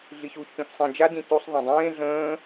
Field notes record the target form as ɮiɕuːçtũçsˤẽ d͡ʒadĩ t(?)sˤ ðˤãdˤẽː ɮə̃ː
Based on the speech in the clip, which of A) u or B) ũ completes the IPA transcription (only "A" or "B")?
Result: A